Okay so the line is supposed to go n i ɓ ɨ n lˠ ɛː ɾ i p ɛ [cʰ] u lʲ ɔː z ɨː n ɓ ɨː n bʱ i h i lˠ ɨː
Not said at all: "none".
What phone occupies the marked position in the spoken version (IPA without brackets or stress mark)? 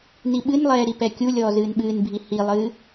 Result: kʲ